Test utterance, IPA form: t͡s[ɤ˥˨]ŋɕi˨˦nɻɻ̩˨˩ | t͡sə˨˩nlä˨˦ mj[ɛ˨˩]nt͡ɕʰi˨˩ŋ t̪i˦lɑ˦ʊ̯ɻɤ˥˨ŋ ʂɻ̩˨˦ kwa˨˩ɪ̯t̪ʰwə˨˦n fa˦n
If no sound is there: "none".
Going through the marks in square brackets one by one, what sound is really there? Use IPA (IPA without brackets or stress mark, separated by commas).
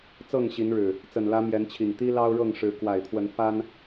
ɤ˥˨, ɛ˨˦